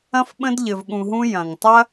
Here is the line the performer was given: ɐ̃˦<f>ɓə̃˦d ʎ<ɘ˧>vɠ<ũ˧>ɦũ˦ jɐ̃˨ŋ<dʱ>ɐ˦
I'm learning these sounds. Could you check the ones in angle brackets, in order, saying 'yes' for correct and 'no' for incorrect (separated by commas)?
yes, yes, yes, no